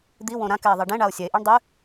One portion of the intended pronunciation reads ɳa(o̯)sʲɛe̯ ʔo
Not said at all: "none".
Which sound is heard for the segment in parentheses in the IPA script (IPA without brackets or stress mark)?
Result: o̯